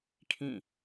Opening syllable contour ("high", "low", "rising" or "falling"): falling